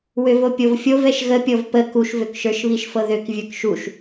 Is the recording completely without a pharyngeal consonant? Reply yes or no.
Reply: yes